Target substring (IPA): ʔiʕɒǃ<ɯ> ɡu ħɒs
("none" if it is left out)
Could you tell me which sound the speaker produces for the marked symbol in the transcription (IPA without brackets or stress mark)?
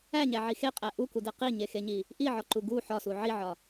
u